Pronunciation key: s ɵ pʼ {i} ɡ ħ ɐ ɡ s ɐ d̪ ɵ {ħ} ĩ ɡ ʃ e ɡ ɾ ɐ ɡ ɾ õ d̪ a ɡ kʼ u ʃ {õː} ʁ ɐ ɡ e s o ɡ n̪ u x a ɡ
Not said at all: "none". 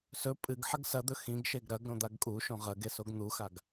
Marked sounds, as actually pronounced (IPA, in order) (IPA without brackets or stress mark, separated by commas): ɨ, x, õ